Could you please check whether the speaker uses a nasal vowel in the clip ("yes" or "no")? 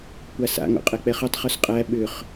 no